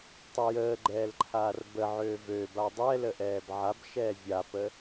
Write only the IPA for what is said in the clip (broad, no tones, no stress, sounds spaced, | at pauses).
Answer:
tˤ ə j əː ɡ͡ǃ ɛː l ǃʰ aː r b ə ʕ øː v ø b a dˤ ɛ l ə ʔ ɛː b ʕ a b ʃ ɛː vʲ a p ə